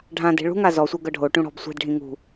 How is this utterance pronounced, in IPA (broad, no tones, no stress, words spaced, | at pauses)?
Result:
ɖʱãde̤ ɭṳŋa zɔsʷɤ ɡɤɖʱoʈũ ɽɔ̤bsʷe̤dɖʱĩ ŋṳ